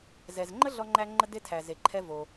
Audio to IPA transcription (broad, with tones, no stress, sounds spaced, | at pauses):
z ɛ˩ z ŋ͡ǃ ə˦ ɮ ɔ˦ ŋ͡ǃ æ˦ ŋ͡ǃ ə˥ d e˥ tʰ æ˩ z e˩ ǃʰ ɛ˦ v o˩